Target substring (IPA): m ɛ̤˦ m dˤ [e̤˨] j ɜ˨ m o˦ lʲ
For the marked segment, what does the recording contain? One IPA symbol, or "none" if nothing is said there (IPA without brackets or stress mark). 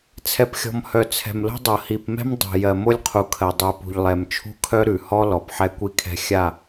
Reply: ɛ̤˨